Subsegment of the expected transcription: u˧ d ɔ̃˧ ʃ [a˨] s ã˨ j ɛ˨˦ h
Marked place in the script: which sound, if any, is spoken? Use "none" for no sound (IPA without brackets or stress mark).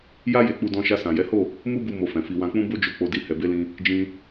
a˧